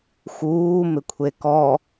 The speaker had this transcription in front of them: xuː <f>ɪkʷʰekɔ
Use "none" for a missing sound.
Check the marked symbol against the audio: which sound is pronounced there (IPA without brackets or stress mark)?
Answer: m